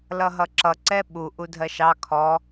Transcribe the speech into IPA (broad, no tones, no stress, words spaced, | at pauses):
lʌɦʌǁʌ ǀɛɓu ʔudʱɜʃɑ kʰɔ